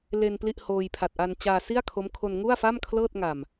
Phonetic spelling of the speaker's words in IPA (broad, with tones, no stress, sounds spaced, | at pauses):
l e˧ n p l i˥˩ ʔ h oː˧ j pʰ a˨˩ t̚ ʔ a˧ n t͡ɕ aː˧ s i˥˩ a̯ kʰ o˦˥ m kʰ o˧ n ŋ u˥˩ a̯ f a˥˩ m kʰ l ɤː˥˩ t̚ ŋ a˨˩ m